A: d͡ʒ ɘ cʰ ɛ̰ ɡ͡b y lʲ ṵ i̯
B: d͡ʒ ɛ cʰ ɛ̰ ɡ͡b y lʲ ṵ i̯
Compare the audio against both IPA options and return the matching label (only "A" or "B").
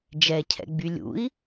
B